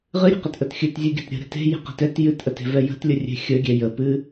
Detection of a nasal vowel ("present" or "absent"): absent